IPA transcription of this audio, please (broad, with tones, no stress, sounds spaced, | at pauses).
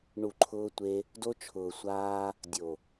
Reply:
ɳ u˨ ǃʰ ʊː˧ tʷ e˧ | d o˧ t͡ʃʰ ʊː˨ sʷ aː˧ | dʲ o˨